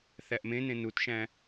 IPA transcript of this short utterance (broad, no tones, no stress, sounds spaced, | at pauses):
θ æ ʔ m ẽ n ẽ n u t ʃ æ̃